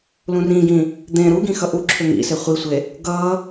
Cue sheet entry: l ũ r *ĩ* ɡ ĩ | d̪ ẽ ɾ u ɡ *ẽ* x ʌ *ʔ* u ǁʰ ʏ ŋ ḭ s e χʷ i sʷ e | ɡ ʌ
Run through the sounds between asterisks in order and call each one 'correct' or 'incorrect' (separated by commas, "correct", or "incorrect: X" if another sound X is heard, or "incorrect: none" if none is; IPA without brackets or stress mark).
correct, incorrect: ĩ, correct